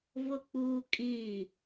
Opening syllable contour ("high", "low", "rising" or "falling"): low